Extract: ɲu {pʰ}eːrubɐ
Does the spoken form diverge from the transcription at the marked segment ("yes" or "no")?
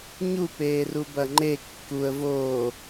yes